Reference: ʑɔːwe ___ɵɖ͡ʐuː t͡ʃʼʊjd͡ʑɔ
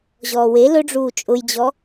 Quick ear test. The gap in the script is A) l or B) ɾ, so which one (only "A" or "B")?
A